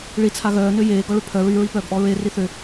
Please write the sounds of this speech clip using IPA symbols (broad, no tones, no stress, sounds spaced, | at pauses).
ɭ i t͡sʰ a ɣ œː n ø j eː ɡ ɔ ɭ ø pʰ œ ɹ y ɹ i p œː ɡ ʔ ɔ ɹ e r i θ ø